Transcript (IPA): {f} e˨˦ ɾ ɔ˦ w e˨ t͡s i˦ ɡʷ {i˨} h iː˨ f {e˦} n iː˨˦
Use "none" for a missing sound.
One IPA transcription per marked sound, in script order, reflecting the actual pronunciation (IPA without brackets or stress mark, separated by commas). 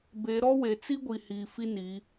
b, i˨, i˦